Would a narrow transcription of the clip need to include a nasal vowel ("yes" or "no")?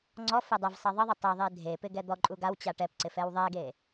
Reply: no